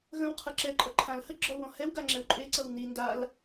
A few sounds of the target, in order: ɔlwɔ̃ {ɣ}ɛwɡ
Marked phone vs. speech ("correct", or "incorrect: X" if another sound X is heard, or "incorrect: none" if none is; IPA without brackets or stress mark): incorrect: h